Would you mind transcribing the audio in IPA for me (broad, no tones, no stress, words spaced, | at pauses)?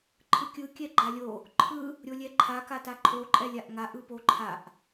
ǃʰɯkʲɯ kʲɛɡ͡ǃalʲo | ǃʰɯ | ɾʲolʲɛǃʰa kataǃʰo ǃʼɛlʲaʔŋa ʔɯpoǃʰaʔ